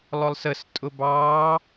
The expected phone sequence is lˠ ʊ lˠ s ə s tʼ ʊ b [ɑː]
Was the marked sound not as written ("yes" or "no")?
no